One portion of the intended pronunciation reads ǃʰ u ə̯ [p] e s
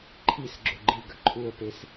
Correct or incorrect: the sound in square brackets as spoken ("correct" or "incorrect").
correct